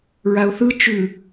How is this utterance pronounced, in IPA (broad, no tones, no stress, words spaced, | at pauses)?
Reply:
ɹaʊ̯θɯ t͡ʃʉ